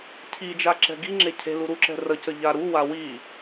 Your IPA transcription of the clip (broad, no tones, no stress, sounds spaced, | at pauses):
cʰ i d͡ʒ a ǁ ɛ̤ ɡ i ŋ͡ǁ e cʰ e̤ l u ɾ u ǁ ɛ̤ r ə c ə ʎ a ɾ u w a w i